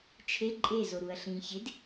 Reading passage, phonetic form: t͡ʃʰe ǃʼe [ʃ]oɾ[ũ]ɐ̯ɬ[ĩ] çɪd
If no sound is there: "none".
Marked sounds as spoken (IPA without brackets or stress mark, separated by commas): z, u, ĩ